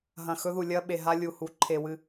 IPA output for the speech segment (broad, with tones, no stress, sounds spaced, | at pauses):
ɦ ɐ̃˨ x ɵ˦ ð u˨ lʲ ɐ˦ ɓ e˨ ɦ a˦ lʲ u˨ h u˨ ǃʰ e˨ w ɨ˨